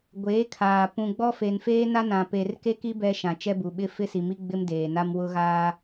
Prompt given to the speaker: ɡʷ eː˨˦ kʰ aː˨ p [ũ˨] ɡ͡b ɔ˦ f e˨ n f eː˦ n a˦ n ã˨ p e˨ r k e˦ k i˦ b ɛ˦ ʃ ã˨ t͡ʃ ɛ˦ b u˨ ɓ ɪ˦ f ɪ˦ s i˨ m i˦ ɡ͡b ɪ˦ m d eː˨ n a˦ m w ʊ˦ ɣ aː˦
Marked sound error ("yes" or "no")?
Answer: no